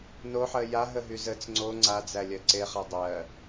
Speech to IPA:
n o ħ ɜ j a ɦ ə ɦ y z ə t͡s ŋ͡ǀ o ŋ͡ǀ a d͡z æ lʲ ɜ ǀ e χ a dˤ ɜ

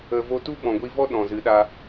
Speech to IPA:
ə˧ v o˦ t u˦ ɓ ɔ̃˨ ɡʷ i˧ v ɔ˦ ɗ ɔ̃˨ z ɨ˨˦ ɗ a˧

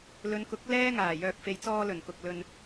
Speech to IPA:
l ɵ˨˧ n k ʊ˨˥ k̚ l ɛː˥ ŋ aː˨˩ j œː˨ k̚ f e˨ j t͡s ɔː˧ l ɵ˨˩ n k ʊ˨ k̚ l ɵ˧ n

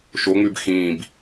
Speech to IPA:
ʃ o ŋ͡m ʉ b x ĩː b

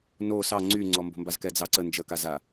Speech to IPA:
n o s ɑ ŋ͡ǀ y ŋ͡ǀ ɔ m b o̤ m b a z k ɛ d͡z ɑ ǀ ə n d͡ʒ ə k a z a

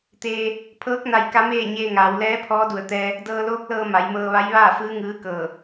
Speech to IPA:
t̪ eː˧ | pʰ ɤː˧˥ k̚ n a˧ j k a˧˥ m eː˥˨ ɲ eː˧ ŋ aː˩˧ w l ɛː˧˥ pʰ ɔː˧˥ d u˧˩ ə̯ t̪ ɛː˧ | d ɤː˧ l oː˧˥ k̚ l ɤː˧ m a˩˧ j m ɤː˧ ʋ a˧˥ j ʋ aː˥˨ f ɯː˧˥ ŋ ɯː˧˥ k ɤː˧˩

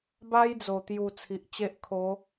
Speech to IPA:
b a˦ j d͡z o˨˩ t̪ j u˨˩ t͡sʰ i˨ ʔ t͡ɕ e˦ ʔ kʰ o˨˦

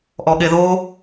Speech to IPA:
ʔ ɔ ɠ e ð o

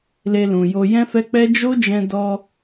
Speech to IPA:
l e˧ l ũ˨ j o˧ j ɛ̃˦ f ɛ˦ k͡p ɛ˦ d͡ʒ o˦ d͡ʒ ɛ̃˧ d ɔ˧

